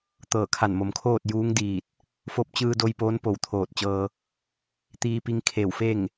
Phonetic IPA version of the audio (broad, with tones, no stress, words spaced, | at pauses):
t̪ɤː˧˩kʰa˧˩nmo˩mkʰoː˥˨t̚ juː˧˥ŋdiː˧˩t̚ | fo˧p̚t͡ɕɯː˧do˧j poː˧˥npo˧˩wt̪ʰoː˧˩t̚t͡ɕɤː˧ | t̪iː˧pi˧ŋ kʰe˧˩w fe˥˨ŋ